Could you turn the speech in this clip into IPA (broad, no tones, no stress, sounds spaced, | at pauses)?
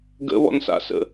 ɡ ə̰ β ɔ̰ n s a̰ s ə̰